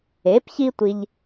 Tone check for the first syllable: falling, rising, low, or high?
rising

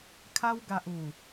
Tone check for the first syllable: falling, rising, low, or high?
high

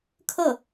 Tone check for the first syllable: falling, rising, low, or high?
falling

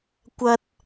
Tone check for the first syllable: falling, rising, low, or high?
high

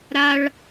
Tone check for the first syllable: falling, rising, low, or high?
high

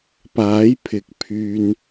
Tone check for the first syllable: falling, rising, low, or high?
rising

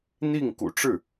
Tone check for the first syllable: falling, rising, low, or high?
falling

